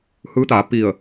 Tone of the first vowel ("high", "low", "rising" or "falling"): rising